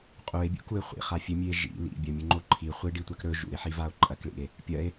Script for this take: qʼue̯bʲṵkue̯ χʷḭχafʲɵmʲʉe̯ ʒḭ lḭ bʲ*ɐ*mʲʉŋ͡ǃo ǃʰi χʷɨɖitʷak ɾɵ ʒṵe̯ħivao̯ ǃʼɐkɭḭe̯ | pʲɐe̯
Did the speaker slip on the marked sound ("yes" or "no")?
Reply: no